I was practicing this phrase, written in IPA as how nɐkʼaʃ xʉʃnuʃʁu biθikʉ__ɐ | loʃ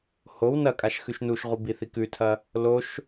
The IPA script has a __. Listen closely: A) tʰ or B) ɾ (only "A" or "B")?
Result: A